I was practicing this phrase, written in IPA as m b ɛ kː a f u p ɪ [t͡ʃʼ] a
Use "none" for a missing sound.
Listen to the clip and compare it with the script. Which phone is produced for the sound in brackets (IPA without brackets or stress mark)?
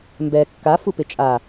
t͡ʃʼ